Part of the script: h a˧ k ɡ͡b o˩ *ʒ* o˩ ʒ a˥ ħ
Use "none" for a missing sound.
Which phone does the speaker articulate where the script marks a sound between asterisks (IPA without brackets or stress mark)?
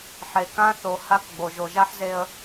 ʒ